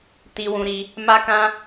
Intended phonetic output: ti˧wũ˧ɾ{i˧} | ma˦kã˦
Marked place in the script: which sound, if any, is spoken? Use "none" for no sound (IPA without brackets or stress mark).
i˧